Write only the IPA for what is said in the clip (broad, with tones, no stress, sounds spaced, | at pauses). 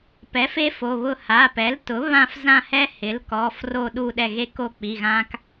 p ɛ˩˥ f e˦ f o˩˧˩ β ʊ˦˨ h a˩˧˩ p ɛ˩˥ l t ʊ˩˥ β ã˦˨ f z ã˦˨ h ɛ˦ h ɪ˩˥ l k ɔ˩˧˩ f r o˦˨ ɗ u˦˨ ɗ ɛ˦˨ ɣ e˦ k o˦˨ k͡p i˩˧˩ ɣ ã˦ k